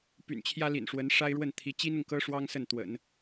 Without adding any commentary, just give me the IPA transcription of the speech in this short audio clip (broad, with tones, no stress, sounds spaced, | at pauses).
p y̰˨˩ n t͡ɕʰ j ä˥ l ḭ˨˩ n ʂ w ə˧˥ n ʂ a˥ ɪ̯ ɻ w ə˥˩ n t̪ʰ i˧˥ t͡ɕ i˥ n ʊ˨ ŋ k ɤ˥ ʂ w ɑ˥ ŋ s ə˥˩ n t̪ w ə̰˨˩˦ n